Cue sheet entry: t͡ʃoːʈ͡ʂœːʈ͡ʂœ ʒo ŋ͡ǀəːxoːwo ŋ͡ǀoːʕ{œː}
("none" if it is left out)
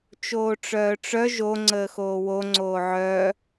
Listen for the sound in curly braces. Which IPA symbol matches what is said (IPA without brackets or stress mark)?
œː